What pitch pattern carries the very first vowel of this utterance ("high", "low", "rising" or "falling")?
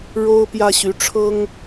high